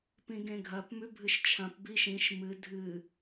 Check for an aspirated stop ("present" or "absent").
present